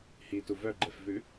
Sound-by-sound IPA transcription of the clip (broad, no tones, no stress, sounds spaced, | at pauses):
h i t u v œ ɡ͡ǃ ɛ f v ʉ